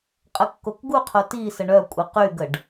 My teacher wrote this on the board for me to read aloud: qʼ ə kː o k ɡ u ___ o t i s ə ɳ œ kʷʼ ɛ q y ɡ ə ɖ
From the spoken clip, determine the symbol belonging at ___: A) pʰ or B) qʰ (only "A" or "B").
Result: B